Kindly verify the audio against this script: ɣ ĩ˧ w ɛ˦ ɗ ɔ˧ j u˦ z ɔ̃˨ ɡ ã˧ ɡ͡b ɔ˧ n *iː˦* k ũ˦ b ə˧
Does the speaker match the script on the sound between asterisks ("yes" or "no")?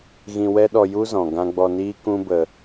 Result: yes